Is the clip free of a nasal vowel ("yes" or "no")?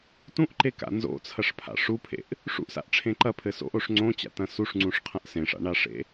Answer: no